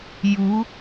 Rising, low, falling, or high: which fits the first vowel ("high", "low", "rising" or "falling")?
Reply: rising